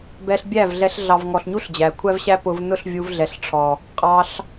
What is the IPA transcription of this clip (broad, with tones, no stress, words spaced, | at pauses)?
bɛ˧ɬbʲæ˦˨vɮɛ˧ɬ ɮɑ˨vŋɔ˨ɬɲu˧ɬ d͡ʑæ˨kʷʰæ˦vɕæ˦ pʊ˧vnʊ˦ɬvʲu˧v ɮɛ˨ɬʈ͡ʂʰɔ˨ | qʼɑ˧ɬ